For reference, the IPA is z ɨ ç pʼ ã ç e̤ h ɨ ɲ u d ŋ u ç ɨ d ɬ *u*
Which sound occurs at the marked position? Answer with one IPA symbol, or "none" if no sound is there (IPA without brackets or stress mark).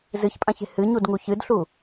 u